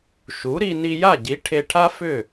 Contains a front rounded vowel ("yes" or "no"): yes